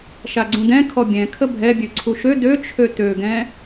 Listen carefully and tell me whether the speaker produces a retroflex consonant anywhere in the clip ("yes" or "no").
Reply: no